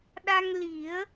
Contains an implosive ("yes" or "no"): yes